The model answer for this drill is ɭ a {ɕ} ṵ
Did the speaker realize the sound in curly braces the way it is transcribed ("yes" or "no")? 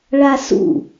no